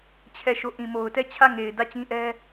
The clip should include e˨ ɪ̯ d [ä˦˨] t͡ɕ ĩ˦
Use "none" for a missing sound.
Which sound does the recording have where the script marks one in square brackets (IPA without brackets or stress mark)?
ä˦˨